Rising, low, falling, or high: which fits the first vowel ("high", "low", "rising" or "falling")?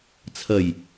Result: low